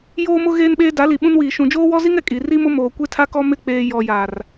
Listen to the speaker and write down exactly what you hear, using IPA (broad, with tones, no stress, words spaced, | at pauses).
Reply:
joː˦mʊ˦ ɣeː˦nɓeː˦ da˨˦li˨ɓũ˦nwiː˨ ʃũ˨d͡ʒoː˦wɔ˦zi˦ŋ ɛ˨kʼi˨ ri˦mʊ˦ moː˨kʷe˦tʰa˦ kɔ˦mɪ˦˨k͡peː˨ jɔ˨ja˨r